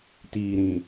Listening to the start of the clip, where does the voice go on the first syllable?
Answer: low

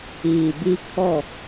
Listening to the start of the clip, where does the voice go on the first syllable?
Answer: low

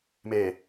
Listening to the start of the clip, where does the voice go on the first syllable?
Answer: low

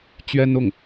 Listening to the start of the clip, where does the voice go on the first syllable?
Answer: high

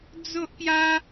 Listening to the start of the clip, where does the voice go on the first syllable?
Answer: high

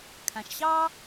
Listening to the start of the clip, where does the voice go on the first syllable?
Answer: low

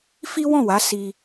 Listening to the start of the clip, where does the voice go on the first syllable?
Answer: high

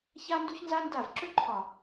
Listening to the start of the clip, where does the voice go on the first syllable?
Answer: high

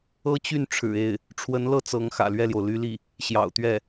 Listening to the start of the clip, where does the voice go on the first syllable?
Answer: high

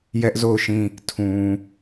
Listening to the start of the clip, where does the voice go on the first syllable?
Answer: high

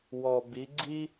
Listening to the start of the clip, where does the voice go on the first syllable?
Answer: low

